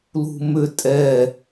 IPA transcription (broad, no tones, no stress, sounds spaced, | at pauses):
l ṳ m ʏ tʼ ɛ